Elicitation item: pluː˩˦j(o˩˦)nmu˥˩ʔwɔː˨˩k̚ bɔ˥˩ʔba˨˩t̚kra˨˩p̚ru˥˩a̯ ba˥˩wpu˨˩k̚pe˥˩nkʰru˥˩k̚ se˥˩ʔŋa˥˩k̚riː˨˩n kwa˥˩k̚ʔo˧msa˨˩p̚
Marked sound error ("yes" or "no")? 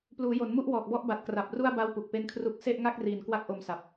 no